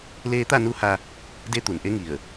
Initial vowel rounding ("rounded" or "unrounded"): unrounded